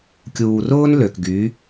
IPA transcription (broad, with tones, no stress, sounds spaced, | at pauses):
kʲ uː˨ r ʊː˦ n l ø˨ k ɡ y˨˦